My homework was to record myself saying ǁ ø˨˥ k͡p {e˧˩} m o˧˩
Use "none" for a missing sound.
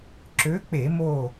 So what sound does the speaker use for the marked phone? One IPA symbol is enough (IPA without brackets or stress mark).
e˧˩˧